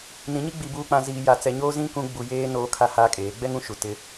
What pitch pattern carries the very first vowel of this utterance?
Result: rising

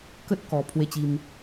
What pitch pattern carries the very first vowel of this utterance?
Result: high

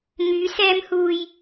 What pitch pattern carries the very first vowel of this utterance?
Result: rising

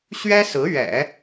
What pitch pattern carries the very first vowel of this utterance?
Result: high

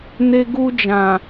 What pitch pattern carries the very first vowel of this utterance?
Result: high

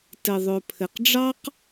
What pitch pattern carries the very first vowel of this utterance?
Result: low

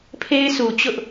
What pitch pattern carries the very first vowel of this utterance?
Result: high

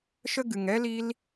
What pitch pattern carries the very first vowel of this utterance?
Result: high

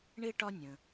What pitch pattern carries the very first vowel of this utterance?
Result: high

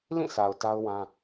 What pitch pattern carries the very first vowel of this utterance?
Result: falling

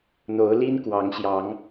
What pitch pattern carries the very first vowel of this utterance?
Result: rising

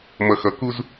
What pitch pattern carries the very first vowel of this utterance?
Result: low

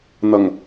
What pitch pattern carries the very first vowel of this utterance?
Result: low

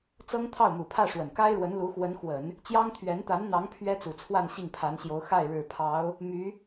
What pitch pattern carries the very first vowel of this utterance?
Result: high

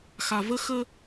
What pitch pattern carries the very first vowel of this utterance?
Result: low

